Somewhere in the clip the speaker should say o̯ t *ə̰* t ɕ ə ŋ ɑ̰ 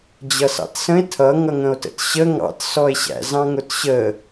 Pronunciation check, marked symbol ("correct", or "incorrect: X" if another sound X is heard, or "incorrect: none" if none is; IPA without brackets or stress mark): correct